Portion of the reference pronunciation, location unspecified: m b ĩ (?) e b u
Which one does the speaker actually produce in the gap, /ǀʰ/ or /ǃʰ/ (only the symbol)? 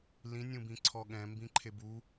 ǃʰ